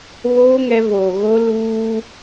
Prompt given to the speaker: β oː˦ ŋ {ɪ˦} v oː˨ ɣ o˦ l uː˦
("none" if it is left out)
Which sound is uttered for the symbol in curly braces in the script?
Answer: ɛ˦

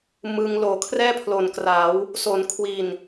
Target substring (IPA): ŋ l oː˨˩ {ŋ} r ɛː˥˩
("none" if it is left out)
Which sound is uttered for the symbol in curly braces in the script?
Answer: kʰ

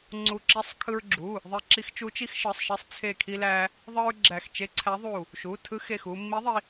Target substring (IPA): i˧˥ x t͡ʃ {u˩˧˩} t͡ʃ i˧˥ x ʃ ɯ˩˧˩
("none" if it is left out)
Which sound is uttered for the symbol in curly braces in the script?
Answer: u˧˥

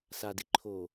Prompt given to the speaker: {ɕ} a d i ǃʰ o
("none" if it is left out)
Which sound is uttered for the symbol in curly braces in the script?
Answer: s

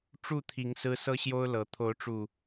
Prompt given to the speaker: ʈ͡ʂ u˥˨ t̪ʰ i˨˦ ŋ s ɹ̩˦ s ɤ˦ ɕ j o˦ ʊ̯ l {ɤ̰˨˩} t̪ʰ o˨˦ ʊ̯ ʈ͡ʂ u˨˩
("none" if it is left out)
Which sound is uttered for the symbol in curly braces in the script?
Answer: ɤ˨˦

